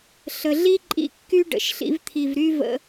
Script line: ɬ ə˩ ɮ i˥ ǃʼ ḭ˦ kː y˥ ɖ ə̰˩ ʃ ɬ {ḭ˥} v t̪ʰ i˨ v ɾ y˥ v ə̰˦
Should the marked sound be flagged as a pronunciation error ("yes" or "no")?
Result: yes